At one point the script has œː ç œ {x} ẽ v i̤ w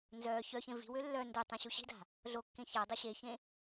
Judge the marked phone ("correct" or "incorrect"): incorrect